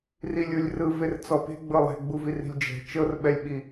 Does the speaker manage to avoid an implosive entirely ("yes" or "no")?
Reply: no